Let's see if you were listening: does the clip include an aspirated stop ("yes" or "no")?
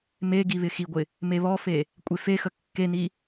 no